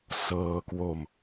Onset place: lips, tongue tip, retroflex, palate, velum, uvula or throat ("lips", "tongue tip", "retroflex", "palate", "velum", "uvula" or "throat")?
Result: tongue tip